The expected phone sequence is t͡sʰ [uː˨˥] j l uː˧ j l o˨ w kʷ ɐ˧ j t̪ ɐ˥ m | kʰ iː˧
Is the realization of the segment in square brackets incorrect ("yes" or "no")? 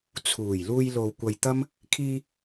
yes